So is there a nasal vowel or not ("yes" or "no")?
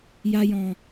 yes